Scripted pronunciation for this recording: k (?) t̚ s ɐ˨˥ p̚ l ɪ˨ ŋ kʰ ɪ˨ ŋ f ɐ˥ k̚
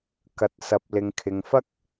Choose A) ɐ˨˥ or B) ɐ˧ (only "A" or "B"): A